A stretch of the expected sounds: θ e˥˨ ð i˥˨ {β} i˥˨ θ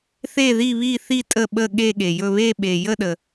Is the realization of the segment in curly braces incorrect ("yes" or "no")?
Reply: no